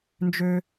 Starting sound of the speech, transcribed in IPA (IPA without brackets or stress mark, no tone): n